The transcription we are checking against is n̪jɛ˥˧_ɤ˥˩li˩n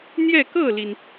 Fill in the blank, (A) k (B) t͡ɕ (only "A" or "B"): A